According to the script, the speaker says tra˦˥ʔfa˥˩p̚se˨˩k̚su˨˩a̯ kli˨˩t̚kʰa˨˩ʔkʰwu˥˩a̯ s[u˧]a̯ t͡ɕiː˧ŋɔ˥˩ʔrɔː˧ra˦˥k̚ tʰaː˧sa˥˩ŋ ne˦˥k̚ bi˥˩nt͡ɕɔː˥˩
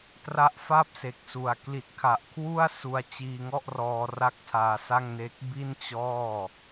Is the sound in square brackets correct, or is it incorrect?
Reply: correct